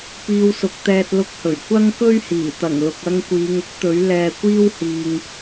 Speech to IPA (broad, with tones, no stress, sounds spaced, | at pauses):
p iː˧ w s ʊ˨˥ k̚ t̪ ɛː˧ t̚ l ʊ˧ k̚ h ɵ˨˩ ɥ kʷ ɐ˥ ŋ k ɵ˥ ɥ h iː˨˩ t̪ ɐ˨˩ ŋ l ʊ˨ k̚ ɐ˧ ŋ kʷ iː˨˧ ŋ ʊ˥ k̚ t̪ ɵ˨˥ ɥ l ɛː˧ kʷ iː˥ w h iː˧ ŋ